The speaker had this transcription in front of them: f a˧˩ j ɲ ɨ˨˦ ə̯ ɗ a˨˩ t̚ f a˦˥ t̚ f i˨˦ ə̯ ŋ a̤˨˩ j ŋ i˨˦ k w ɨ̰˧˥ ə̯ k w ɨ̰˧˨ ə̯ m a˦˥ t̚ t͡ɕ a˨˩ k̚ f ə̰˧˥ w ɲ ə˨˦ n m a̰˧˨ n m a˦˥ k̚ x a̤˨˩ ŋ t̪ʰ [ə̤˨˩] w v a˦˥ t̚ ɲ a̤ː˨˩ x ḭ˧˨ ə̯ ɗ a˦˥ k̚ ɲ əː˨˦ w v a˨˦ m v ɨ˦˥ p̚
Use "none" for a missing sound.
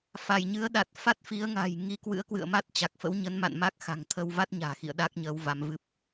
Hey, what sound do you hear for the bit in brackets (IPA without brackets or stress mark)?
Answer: ə˧